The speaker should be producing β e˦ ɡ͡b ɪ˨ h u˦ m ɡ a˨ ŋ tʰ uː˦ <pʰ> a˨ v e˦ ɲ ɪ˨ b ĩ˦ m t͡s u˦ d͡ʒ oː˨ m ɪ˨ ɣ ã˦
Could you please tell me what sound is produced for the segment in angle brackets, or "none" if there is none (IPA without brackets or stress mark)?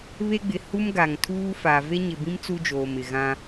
f